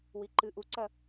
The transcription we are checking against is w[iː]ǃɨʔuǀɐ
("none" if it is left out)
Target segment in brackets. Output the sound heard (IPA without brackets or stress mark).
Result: i